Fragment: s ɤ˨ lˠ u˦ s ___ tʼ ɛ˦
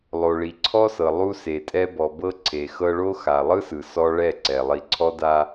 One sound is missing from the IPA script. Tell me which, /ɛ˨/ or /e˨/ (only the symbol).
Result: e˨